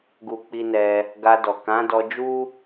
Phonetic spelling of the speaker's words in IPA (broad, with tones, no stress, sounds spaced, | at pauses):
ɡ u˧ k͡p i˧ n ɛ˧ | ɡ a˧ d ɔ˨ k ã˨˦ d ɔ˧ d͡ʒ u˦